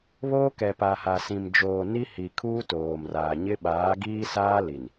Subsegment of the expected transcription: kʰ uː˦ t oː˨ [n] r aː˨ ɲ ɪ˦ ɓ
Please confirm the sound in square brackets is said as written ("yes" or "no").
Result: no